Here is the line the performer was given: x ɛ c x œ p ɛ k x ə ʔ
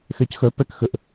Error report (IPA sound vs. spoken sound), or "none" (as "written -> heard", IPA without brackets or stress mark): none